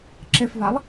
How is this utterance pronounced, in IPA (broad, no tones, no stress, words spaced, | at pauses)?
ǁɪfvalˠ